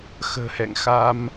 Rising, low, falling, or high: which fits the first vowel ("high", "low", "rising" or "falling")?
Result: low